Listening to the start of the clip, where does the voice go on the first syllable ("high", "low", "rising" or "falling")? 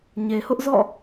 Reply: low